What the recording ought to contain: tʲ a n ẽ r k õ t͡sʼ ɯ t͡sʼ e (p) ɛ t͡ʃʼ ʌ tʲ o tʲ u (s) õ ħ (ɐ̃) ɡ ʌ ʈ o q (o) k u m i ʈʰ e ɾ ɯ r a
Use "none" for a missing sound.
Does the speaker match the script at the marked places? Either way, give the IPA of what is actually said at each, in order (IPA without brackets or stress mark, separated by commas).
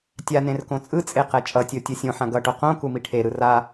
q, sʲ, ã, õ